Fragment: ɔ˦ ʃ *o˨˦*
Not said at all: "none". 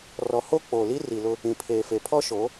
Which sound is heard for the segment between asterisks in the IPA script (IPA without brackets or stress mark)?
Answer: o˨˦